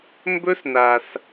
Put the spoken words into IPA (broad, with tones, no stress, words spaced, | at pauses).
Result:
mbɵ˥sna˩s